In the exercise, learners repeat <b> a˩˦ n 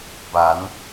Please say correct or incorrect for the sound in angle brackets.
correct